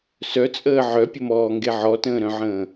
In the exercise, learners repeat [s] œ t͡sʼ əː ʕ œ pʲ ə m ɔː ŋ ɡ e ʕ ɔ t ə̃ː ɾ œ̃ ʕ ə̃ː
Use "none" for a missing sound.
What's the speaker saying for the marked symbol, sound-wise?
s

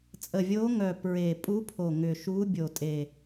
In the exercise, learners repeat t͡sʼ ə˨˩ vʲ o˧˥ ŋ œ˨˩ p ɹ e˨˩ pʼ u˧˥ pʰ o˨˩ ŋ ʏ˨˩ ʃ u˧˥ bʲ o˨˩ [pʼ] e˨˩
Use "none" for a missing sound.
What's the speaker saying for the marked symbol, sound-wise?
tʼ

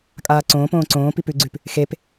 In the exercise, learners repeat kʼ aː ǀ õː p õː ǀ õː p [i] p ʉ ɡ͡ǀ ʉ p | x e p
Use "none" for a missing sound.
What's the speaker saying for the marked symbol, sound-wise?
i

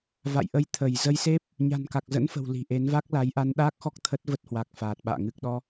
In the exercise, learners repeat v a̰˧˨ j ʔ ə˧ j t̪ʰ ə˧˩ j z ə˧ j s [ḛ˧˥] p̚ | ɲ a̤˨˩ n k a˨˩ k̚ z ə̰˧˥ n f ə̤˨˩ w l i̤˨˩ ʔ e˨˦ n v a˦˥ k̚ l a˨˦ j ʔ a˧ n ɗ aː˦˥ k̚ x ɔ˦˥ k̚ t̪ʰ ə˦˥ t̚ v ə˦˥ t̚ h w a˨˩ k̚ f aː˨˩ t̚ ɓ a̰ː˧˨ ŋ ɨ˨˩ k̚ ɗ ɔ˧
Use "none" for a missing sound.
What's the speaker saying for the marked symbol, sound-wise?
e˦˥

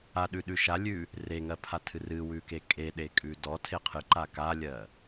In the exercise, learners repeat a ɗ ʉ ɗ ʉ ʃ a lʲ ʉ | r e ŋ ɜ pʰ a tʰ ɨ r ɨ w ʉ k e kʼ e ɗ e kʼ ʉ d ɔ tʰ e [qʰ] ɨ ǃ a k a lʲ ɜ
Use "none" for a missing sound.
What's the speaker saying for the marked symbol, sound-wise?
qʰ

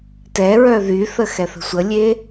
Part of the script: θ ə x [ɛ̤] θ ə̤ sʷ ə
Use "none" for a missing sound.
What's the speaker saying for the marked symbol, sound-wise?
ɛ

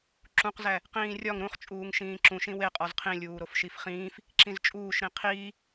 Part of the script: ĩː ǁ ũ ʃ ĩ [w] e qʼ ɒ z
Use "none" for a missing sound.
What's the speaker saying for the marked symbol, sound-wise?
w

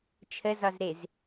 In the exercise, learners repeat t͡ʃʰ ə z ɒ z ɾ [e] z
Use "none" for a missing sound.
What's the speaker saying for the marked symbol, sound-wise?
e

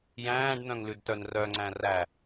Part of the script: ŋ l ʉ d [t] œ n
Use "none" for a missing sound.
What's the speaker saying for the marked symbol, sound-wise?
t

